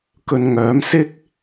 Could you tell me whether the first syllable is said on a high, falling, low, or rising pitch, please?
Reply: low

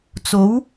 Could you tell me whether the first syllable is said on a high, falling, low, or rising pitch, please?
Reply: rising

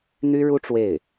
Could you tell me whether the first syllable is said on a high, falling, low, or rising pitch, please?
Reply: high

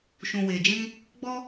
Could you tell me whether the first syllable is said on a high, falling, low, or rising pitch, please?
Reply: low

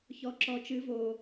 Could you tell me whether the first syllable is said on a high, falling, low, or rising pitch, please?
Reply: low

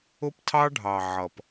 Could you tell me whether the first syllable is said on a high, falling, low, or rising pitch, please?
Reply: high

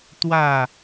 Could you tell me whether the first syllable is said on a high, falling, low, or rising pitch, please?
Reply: falling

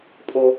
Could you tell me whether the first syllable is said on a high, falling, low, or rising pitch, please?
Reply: low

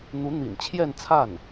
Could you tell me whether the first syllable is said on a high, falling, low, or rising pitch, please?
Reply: rising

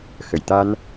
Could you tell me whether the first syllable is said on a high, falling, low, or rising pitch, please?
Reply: low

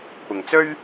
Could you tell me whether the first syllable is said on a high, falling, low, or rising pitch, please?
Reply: low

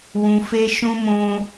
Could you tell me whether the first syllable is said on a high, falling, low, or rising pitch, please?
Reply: high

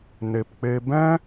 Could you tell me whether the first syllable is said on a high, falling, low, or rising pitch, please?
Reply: low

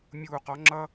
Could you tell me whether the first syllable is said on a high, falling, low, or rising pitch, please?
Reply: low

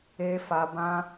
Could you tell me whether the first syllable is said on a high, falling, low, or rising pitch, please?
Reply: high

